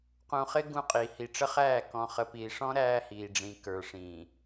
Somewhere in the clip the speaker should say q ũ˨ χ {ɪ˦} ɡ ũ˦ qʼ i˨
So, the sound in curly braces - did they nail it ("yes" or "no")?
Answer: yes